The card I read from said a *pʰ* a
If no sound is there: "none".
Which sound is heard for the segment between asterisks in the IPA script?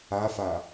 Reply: f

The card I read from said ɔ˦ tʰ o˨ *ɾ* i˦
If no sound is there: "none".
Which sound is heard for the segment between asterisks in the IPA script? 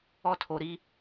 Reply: ɾ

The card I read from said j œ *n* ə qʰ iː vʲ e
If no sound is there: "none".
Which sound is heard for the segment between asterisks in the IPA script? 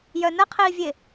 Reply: n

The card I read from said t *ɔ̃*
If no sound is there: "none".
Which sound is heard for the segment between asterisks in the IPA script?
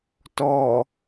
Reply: ɔ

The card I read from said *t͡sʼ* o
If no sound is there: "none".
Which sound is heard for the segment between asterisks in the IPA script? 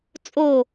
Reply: t͡sʼ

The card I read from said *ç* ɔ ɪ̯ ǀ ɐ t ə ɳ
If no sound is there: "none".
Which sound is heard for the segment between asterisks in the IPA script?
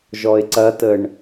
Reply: ʒ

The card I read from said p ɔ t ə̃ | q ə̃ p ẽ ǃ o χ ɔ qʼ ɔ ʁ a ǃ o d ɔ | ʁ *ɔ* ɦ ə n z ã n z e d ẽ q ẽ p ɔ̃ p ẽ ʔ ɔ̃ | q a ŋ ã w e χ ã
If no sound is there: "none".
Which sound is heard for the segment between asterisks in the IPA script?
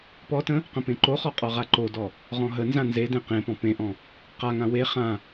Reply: ɔ̃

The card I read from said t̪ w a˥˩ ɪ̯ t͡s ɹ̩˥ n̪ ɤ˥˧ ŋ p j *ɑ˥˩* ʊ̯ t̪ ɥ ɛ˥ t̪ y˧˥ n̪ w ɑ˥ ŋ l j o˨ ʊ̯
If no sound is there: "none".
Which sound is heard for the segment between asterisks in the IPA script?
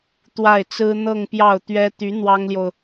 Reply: ɑ˥˩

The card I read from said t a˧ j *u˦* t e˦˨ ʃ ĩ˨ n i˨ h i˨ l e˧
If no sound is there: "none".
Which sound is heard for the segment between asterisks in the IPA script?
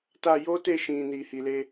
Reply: o˦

